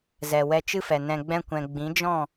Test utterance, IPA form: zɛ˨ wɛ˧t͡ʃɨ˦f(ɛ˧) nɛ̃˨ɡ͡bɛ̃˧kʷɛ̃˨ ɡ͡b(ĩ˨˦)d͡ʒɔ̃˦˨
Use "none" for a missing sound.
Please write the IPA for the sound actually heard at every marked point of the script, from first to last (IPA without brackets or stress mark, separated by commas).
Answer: ɛ˨, ĩ˨˦